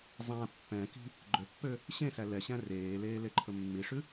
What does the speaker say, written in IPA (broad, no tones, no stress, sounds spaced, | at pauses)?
zˤ æ̃ pː ɛ̃ k i̤ | ɡ͡ǃ ø pː ø | ɕ ẽ s æ l ɛ ɕ æ̃ r eː l eː l e ǃʰ ɵ mː i ʂ ʉ